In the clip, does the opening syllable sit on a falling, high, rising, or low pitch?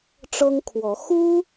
high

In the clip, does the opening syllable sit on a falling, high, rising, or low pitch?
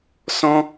high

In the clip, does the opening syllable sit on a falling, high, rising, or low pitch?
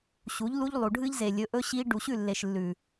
rising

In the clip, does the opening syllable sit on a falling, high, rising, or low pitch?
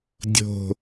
falling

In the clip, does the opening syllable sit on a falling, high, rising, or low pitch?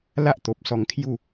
high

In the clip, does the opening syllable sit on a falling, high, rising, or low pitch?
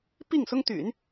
falling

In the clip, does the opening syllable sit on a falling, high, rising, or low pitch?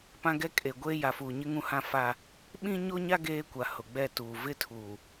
high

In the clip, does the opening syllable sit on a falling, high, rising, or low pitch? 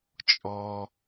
high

